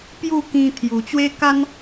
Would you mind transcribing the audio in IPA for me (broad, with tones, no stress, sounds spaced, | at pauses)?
p j u˥˧ k ĩ˧ t̪ʰ j u˨˩ t͡ɕ w e˦ k a˦ n